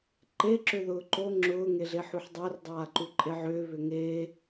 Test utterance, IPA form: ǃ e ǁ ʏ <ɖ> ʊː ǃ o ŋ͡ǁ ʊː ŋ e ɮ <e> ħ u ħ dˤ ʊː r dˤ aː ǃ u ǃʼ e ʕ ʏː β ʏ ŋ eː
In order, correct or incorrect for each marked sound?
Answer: incorrect: ð, correct

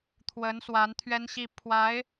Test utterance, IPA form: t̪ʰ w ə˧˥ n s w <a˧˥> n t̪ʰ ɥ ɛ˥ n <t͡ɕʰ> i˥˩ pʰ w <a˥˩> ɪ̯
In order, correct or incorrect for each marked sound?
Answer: correct, incorrect: ɕ, incorrect: a˧˥

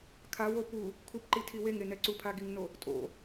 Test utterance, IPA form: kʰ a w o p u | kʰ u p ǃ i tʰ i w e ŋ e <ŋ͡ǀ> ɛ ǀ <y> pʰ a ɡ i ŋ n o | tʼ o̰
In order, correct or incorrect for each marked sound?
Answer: incorrect: n, incorrect: u

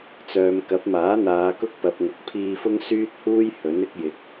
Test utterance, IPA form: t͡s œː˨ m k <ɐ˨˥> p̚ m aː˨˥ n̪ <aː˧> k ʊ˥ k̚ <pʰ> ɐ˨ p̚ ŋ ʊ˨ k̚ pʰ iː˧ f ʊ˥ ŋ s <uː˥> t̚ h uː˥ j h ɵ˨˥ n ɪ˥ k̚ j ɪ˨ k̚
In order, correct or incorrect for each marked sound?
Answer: correct, incorrect: aː˨˧, incorrect: p, incorrect: yː˥

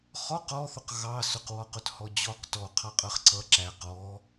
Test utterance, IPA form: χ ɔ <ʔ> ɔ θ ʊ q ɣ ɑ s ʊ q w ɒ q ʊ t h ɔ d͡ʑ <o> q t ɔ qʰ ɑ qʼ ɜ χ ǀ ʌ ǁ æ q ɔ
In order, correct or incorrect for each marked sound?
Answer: incorrect: q, incorrect: ɔ

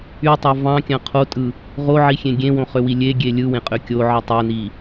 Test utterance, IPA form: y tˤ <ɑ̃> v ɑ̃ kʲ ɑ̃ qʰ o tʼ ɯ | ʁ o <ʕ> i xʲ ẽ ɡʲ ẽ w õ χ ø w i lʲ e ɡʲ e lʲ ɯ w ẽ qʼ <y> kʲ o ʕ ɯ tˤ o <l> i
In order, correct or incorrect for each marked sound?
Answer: incorrect: ɑ, correct, incorrect: ø, incorrect: n

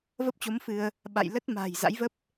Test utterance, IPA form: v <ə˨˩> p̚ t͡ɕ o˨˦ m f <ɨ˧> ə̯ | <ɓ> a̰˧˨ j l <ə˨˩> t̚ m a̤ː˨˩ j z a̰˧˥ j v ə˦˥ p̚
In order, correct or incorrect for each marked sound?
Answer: incorrect: ə˦˥, correct, correct, incorrect: ə˦˥

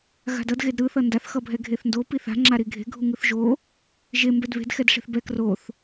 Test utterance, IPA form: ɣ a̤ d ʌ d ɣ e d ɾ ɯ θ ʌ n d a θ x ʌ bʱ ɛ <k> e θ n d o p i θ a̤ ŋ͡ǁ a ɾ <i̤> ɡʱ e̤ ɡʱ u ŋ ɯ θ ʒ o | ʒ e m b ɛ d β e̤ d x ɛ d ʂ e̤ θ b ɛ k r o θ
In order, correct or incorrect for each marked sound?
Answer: incorrect: ɡʱ, incorrect: i

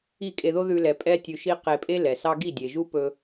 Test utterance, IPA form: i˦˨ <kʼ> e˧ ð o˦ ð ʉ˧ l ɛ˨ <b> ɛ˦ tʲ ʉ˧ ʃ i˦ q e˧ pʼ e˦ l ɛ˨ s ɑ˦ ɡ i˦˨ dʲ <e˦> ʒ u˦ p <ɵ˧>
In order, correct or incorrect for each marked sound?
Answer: correct, incorrect: pʼ, incorrect: e˨, correct

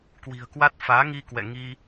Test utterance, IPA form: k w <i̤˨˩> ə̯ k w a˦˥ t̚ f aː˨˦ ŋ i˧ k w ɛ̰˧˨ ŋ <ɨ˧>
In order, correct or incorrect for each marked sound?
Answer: correct, incorrect: i˧

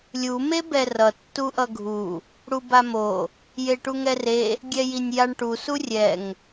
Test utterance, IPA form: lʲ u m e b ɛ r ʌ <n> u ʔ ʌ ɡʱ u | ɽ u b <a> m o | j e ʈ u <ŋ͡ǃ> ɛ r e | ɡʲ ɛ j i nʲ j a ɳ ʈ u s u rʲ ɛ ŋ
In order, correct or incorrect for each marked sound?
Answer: incorrect: tː, correct, incorrect: ŋ

